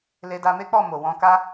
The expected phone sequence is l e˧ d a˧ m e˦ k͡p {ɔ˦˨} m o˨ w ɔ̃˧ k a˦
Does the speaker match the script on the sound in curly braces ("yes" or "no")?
yes